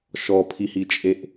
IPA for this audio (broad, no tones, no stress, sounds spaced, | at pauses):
ʃ ɔ pʰ i h i t͡ʃʼ e ʔ